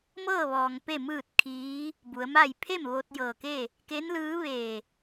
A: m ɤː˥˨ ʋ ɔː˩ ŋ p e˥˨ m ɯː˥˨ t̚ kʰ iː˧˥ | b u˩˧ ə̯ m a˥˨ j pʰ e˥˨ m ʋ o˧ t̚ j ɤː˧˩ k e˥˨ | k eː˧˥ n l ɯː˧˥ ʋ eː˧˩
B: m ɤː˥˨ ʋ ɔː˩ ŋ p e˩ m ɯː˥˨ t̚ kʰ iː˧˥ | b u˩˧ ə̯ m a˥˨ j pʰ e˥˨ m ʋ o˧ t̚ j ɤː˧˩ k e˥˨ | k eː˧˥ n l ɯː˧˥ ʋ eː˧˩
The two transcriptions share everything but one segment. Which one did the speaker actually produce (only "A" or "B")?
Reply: A